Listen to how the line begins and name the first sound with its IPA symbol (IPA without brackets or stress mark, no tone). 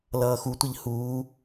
l